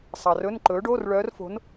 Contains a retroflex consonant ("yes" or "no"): yes